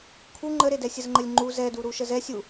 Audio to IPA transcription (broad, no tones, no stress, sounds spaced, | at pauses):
kʰ u ŋ͡ǃ ə ɾ e d ɛ sʲ ə z ŋ͡ǃ ə lʲ ŋ͡ǃ u z ɛ d u ɾ u ʃ ə z ɛ sʲ u